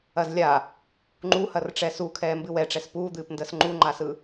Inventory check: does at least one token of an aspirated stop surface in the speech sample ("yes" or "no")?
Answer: yes